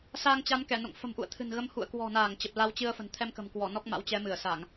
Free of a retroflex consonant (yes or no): yes